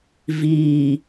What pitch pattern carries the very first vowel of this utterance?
low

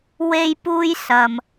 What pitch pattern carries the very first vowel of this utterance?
high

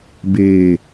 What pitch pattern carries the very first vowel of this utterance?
low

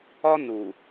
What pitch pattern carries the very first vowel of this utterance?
high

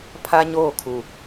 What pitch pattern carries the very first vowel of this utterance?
high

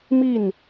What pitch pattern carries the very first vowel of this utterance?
falling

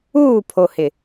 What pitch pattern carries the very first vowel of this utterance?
falling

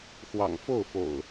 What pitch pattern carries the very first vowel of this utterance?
low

